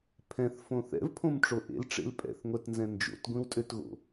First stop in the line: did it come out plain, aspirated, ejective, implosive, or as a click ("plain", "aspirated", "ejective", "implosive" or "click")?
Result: aspirated